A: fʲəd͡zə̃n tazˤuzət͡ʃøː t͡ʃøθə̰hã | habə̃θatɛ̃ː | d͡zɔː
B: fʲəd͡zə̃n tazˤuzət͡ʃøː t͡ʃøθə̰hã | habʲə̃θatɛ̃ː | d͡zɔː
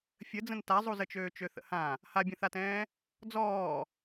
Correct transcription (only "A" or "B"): B